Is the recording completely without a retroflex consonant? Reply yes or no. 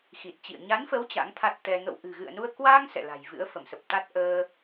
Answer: yes